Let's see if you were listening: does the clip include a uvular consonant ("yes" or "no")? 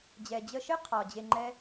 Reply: yes